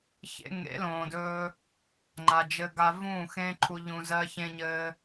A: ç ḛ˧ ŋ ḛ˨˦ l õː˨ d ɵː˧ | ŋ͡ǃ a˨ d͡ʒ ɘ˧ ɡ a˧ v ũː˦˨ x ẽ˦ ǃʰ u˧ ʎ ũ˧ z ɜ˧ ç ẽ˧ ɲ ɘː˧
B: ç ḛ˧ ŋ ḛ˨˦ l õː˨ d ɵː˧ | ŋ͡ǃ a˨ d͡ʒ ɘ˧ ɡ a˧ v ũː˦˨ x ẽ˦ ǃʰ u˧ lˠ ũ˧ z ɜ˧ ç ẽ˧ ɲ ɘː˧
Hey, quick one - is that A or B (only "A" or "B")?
A